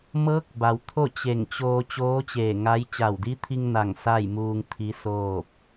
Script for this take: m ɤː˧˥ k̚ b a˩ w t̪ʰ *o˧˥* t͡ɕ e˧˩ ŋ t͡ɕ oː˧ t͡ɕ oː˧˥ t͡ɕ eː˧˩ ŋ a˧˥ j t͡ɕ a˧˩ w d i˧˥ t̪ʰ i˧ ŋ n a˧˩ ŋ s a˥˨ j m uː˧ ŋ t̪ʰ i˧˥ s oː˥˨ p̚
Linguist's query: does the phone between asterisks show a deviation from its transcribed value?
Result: yes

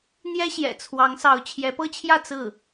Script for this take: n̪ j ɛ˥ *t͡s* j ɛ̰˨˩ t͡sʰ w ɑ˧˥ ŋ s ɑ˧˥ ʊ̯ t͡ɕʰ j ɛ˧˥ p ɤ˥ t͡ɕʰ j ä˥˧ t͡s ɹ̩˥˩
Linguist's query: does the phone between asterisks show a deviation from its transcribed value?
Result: yes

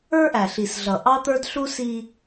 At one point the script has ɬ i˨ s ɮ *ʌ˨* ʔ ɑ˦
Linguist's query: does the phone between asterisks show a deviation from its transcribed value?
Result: no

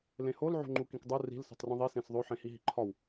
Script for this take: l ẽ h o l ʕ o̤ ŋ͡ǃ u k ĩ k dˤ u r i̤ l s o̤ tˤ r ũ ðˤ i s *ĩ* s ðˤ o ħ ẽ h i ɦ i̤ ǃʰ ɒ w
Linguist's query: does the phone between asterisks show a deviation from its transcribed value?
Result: yes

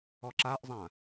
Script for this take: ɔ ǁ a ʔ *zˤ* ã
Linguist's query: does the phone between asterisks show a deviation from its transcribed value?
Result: no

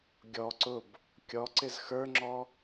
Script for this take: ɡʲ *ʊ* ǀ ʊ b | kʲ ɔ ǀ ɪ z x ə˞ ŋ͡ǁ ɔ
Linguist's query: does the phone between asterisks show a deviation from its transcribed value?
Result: yes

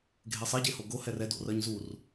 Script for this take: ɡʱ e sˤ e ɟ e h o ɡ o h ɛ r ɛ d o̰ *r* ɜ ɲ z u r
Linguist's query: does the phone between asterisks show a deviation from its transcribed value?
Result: no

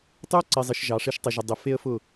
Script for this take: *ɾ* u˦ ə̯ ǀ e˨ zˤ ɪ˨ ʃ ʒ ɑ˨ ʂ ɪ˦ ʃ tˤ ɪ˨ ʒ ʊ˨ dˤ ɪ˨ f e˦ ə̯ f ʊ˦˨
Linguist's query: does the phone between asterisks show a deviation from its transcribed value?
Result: yes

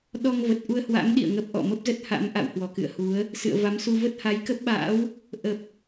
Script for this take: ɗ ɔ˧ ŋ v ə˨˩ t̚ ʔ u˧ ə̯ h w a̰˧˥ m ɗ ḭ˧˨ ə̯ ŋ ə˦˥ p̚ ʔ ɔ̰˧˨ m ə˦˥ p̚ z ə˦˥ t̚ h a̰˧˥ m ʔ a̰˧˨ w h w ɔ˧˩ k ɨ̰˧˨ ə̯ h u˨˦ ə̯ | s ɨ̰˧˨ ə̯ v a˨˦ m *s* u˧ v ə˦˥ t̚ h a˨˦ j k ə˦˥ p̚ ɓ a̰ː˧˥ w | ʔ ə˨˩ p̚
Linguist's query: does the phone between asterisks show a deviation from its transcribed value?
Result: no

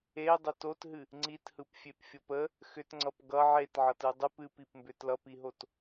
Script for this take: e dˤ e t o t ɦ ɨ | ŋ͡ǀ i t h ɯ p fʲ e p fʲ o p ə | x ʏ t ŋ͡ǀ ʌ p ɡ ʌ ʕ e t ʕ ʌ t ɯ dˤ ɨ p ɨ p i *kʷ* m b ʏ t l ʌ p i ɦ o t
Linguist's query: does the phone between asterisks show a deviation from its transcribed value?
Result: yes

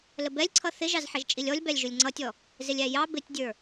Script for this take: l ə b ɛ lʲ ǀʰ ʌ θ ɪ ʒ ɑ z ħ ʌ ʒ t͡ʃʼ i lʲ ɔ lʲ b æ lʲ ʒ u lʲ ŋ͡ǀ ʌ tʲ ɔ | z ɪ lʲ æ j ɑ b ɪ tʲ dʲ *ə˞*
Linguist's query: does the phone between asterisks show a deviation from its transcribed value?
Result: no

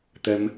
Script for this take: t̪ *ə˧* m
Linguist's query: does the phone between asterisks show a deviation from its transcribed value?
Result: no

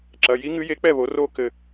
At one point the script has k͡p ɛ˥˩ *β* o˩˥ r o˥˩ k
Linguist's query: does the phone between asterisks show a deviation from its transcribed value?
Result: no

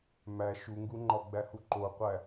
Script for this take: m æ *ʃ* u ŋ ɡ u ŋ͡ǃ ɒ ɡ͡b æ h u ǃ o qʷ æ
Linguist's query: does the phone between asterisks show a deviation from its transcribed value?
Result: no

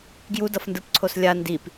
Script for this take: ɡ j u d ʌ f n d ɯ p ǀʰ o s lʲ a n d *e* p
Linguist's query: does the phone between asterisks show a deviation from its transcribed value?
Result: yes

